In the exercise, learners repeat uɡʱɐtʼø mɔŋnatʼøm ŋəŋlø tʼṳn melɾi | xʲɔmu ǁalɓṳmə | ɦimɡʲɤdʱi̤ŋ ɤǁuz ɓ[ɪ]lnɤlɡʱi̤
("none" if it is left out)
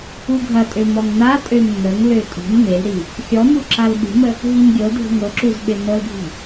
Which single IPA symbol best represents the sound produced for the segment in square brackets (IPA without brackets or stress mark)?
ɪ